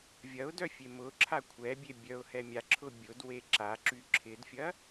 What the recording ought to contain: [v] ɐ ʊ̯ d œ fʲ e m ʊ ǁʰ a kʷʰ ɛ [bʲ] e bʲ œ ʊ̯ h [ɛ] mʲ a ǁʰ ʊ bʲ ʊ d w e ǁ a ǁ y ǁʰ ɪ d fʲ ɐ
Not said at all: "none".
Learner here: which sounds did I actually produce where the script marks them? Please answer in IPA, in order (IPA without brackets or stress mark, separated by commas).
vʲ, bʲ, ɛ